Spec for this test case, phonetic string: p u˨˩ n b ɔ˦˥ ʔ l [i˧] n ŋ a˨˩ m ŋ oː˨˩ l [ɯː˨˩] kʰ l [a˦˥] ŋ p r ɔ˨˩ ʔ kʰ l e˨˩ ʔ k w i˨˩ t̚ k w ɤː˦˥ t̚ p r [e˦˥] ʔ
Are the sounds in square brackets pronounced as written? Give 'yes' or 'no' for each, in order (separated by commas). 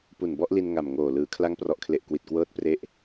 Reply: yes, no, yes, yes